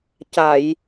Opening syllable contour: low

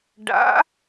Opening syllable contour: rising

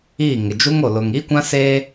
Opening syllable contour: falling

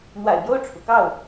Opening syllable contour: low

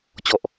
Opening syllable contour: low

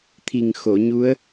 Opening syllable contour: low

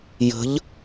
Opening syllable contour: rising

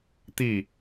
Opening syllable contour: falling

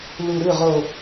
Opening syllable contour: low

